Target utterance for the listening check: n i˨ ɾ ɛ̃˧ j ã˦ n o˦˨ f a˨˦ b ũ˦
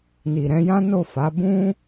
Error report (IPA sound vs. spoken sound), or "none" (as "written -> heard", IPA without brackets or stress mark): none